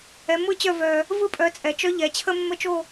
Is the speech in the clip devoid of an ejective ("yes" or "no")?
no